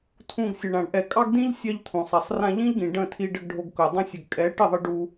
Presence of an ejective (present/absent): present